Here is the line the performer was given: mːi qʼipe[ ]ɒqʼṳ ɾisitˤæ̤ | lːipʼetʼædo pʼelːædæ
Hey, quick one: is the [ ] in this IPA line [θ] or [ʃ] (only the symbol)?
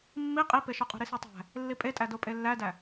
ʃ